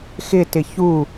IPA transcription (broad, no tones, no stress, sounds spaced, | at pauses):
x ɪ t ɪ ç u